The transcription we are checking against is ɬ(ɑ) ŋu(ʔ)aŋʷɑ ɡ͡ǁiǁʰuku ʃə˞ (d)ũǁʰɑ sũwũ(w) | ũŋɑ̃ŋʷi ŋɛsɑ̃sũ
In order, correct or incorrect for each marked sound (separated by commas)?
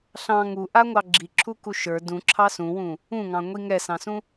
incorrect, correct, correct, incorrect